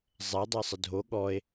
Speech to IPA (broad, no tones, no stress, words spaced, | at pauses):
zˤɛ dˤasˤədʱo ɠɔe̯